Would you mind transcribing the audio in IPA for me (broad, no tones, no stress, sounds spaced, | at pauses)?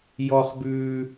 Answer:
j ɔ χ b ʉː